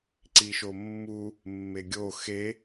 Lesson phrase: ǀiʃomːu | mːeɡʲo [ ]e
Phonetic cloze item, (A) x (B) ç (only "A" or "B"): A